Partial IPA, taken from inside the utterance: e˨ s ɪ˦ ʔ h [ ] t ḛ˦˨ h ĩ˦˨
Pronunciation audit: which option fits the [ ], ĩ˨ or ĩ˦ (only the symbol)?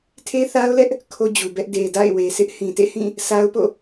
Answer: ĩ˨